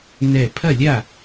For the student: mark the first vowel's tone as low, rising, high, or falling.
falling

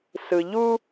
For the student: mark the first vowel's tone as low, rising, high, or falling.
low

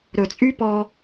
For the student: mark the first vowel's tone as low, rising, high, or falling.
low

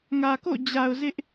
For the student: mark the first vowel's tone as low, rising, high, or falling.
low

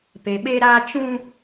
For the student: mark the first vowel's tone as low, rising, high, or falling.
low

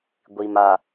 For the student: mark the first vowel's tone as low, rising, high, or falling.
low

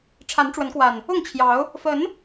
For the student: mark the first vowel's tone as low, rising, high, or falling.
rising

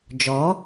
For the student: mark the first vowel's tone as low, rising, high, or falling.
rising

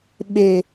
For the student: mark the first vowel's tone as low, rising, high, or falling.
low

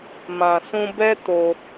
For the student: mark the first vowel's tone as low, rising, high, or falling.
low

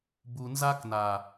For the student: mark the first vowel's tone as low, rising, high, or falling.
low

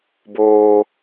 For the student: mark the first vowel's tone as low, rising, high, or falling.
high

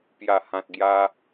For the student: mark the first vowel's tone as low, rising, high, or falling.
low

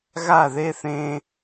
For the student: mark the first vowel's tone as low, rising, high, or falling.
falling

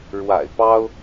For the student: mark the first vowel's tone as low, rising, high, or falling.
low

